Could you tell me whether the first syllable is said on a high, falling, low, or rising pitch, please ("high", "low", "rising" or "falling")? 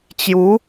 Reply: rising